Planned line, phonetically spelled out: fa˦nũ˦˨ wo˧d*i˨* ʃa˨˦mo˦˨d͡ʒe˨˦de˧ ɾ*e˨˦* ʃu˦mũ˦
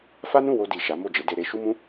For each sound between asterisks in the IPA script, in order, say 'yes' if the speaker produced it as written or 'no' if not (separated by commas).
yes, no